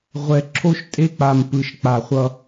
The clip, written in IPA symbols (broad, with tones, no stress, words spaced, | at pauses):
ʁʷɛ˨ǁʰo˦ʃ tʼe˦k͡pa˨m pɯ˨ʃk͡pa˨χʷʌ˦